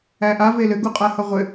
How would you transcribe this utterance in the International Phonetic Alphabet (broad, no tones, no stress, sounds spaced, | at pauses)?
æ ʔ a v e l ɘ ɡ u qʼ a h ʌ ʁʷ ɘ